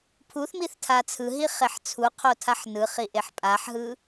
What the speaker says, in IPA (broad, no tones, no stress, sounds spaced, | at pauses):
pʰ u θ m i θ tʰ a t͡sʰ ɯ ɦ i χ e ħ t͡sʰ u qʰ o tʰ a ħ n ɯ χ i ʔ e ħ pʼ a ħ ɦ ɯ